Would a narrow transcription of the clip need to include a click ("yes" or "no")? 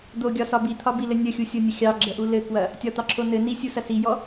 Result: yes